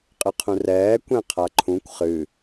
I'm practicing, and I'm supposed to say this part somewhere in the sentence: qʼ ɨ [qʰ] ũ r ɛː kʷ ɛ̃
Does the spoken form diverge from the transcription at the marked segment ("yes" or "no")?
no